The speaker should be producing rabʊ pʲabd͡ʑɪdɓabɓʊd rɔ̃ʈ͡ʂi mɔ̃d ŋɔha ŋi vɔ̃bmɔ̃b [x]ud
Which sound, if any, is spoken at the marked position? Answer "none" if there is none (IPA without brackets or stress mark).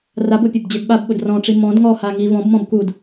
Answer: k